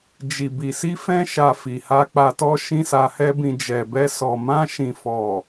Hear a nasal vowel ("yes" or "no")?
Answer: yes